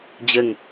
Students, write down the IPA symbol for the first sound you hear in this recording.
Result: d͡ʑ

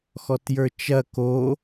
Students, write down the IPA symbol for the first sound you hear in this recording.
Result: x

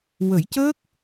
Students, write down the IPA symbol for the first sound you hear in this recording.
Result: w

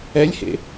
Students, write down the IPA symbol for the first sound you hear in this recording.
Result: ɛ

